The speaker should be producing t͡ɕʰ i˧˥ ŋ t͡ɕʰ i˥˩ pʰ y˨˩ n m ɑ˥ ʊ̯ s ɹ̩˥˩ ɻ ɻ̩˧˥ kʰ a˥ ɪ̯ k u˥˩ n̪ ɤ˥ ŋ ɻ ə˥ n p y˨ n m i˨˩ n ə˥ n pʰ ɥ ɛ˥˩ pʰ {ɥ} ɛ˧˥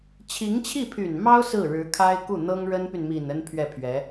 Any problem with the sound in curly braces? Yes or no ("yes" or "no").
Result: no